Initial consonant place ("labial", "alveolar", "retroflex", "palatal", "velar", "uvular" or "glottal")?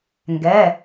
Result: velar